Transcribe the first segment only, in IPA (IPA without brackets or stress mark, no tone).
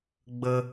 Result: ɡ͡b